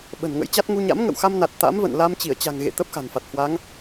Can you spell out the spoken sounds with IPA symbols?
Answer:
ɓ ə̤˨˩ n ŋ ə̰˧˥ j t͡ɕ a˦˥ t̚ ŋ u˧ ɲ a̰˧˥ m ŋ ə̰˧˨ w x a˧ m n a˨˩ t̚ t̪ a̰˧˥ m v ə̰˧˨ n l a˧ m t͡ɕ i˧˩ ə̯ t͡ɕ a̤˨˩ ŋ ɣ ḛ˧˨ t̪ ə˦˥ p̚ x a̤˨˩ n f a˨˩ t̚ h w a˨˦ ŋ

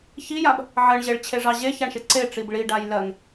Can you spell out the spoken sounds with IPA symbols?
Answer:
ç i j a b | ʕ ɜ ɳ ʑ e ɭ t͡ɕʰ e ʐ ɑ ʑ e ç a ɳ ʃ e ǀ e ʈ͡ʂ i b ɭ i ɖ a j l ɜ ŋ

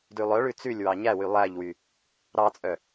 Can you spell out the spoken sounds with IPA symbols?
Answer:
d ʉ lˠ œ ɭ ʉ t͡s ʉ lʲ w ɑ ɲ æ w y lˠ æ ʎ w y | ɾ ɑ t͡sʼ œ

